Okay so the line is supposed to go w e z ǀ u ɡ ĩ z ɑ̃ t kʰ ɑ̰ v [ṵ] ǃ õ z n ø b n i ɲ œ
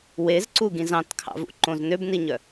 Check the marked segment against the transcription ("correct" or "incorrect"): correct